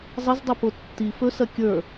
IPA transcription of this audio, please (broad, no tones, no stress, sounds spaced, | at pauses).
zˤ ə z dˤ ʏ p o tː i f ɵ s ɐ kʲ ə˞